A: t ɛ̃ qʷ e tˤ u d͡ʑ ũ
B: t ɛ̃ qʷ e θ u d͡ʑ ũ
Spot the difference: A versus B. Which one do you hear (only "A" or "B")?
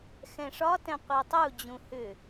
A